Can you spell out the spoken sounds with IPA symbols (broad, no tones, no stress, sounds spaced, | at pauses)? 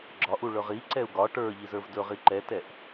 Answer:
ɡ͡ǁ ɒ ʔ u ɭ ɵ ʁ i ǀ ɛ u̯ ɡ ɒ ʈ ə˞ ʎ i z ə˞ v d ɵ ʁ i ǃ ɛ t ɛ ʔ